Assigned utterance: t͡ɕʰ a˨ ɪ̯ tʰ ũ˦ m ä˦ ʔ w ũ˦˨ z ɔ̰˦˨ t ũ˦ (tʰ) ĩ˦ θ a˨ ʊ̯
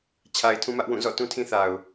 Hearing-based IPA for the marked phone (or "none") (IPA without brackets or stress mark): tʰ